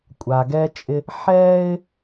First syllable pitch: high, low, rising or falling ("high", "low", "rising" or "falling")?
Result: low